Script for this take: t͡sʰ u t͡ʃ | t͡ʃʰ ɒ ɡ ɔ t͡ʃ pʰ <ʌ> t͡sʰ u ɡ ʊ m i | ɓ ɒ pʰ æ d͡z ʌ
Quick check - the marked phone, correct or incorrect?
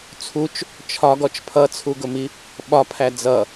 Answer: correct